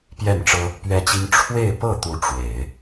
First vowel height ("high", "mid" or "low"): mid